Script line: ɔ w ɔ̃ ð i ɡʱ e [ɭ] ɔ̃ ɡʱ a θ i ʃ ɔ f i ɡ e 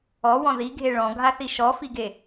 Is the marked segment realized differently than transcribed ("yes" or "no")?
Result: no